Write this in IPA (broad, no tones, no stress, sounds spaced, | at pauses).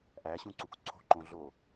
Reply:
ʔ æ ɕ ũ ǀ u k ǀʰ o̤ ǃ õ ɮ o